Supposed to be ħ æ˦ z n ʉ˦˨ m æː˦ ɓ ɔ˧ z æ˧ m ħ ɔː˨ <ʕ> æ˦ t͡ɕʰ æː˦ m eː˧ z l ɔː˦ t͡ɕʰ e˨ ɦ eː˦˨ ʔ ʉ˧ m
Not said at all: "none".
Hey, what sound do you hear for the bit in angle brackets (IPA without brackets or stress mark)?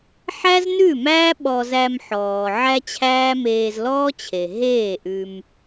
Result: ʕ